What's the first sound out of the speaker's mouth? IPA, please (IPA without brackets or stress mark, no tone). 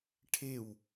ʈʰ